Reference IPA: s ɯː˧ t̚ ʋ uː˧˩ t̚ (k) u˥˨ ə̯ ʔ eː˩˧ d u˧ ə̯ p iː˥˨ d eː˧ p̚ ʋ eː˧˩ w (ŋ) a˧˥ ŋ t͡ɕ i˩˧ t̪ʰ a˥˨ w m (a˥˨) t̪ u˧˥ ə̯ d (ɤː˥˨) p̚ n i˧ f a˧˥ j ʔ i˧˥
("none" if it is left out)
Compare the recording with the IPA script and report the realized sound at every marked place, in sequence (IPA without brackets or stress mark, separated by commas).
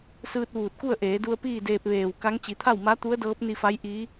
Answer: k, k, a˧˥, ɤː˧˥